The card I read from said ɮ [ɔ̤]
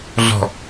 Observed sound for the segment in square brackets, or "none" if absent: ɔ̤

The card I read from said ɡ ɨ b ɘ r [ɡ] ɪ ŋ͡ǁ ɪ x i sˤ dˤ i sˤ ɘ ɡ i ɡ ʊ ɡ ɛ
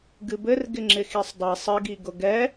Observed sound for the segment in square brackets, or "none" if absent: ɡ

